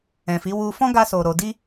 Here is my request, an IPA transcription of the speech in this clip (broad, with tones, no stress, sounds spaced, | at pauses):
ɛ̃˨ f i˨˦ w u˧ f ɔ̃˦ ɡ a˧ s o˨ ɾ o˧ d i˦